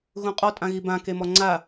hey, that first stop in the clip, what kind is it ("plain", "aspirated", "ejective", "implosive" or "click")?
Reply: ejective